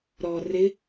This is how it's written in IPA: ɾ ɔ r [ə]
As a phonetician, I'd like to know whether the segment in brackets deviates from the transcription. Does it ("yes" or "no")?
yes